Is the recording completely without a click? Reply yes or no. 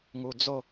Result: yes